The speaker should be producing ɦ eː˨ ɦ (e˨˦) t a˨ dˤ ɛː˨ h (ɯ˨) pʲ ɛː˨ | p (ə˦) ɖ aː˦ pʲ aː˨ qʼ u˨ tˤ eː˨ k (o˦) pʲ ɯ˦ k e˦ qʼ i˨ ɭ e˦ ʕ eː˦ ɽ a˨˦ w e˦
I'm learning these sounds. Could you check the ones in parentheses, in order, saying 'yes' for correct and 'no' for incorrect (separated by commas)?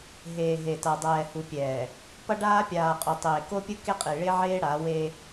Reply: no, no, no, yes